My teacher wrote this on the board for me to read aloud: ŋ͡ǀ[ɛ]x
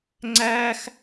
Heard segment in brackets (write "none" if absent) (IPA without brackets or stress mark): æ